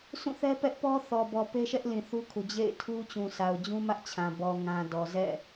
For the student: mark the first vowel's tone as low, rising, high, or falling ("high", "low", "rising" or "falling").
falling